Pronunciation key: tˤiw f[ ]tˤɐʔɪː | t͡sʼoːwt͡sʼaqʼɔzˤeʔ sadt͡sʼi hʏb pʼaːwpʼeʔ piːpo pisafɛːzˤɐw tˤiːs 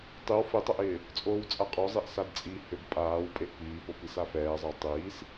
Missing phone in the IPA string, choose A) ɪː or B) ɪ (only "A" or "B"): B